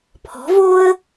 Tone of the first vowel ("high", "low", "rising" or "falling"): rising